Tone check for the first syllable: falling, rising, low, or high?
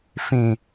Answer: low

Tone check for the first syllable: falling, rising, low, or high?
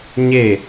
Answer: falling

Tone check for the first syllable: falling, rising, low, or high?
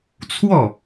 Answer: falling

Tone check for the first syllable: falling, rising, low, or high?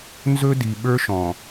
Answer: high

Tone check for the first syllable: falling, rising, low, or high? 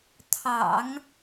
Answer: low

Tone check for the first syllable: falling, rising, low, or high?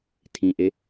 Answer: low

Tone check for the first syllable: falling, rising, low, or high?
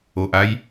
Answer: low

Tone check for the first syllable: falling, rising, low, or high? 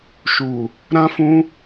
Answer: low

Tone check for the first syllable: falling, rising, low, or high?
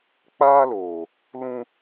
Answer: high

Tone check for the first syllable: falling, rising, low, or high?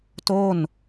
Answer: falling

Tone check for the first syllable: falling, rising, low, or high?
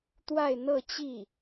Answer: falling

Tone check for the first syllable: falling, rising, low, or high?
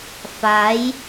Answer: rising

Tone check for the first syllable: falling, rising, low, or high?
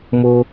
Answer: high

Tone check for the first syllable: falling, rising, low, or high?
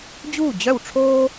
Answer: falling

